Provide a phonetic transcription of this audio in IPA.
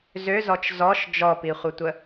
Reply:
z ø z ɔ t͡ʃ z ɔ ʃ d͡ʒ ɔ p i χʷ ə tʷ ə

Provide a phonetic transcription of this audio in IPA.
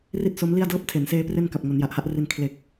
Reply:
r i˥˩ t̚ s o˦˥ m l i˥˩ a̯ d ɤː˥˩ p̚ tʰ e˩˦ n s eː˦˥ p r e˥˩ n k a˨˩ p̚ ŋ o˩˦ n j a˨˩ ʔ h a˥˩ ʔ r i˧ n kʰ l e˨˩ k̚

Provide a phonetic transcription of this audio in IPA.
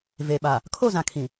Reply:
v e˨ ɓ a˨ | kʰ o˦˨ z ã˨ kʰ ĩ˨

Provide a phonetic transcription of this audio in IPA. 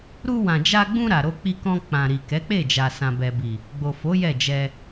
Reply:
ɾ u˧ w ã˨ d͡ʒ a˧ ɡ͡b ũ˧ ɾ a˨ ɾ o˧ k͡p i˧ k ɔ̃˧ k͡p ã˨ ɾ i˨ k ɛ˨˦ k͡p e˦˨ d͡ʒ a˨ s ã˨ b ɛ˨ b i˨ | ɡ͡b o˨ f o˨˦ j ɛ˦˨ d͡ʒ ɛ˧

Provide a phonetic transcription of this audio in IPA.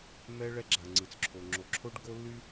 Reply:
m ɛ˦ ɭ ɛ˦ ɡ͡ǁ a˨ ŋ͡ǀ ɯ˨ t͡s ǁʰ o˨ ŋ͡ǁ o˨ ǁʰ o˦ ɖ ɡ o˦ lː y˦

